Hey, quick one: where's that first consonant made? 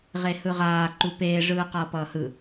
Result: uvula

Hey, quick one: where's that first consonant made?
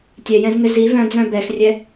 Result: tongue tip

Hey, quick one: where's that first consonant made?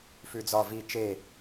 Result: lips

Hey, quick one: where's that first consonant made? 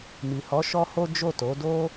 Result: lips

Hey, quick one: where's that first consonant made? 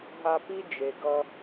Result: throat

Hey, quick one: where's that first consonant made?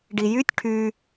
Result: retroflex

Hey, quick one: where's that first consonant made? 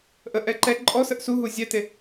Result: throat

